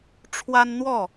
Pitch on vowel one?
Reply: high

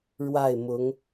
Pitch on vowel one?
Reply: falling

